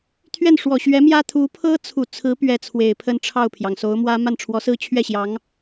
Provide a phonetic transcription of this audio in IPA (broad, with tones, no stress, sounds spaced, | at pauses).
t̪ʰ ɥ ɛ˥˩ n ʂ w ɔ˨˩ ɕ ɥ ɛ˧˥ m j ä˥ t̪ʰ u˧˥ pʰ ɤ˥ t͡sʰ u˨˩ t͡sʰ ɹ̩˧˥ p ɥ ɛ˧˥ t͡sʰ w e˨˩ ɪ̯ pʰ ə˥˧ n ʈ͡ʂʰ ɑ˥˩ ʊ̯ pʰ j ɑ˩ ŋ s o˧˥ ʊ̯ m w ä˥ m a˥˩ n ʈ͡ʂʰ w ɔ˧˥ s ɹ̩˥ t͡ɕʰ ɥ ɛ˥˩ ɕ j ɑ˧˥ ŋ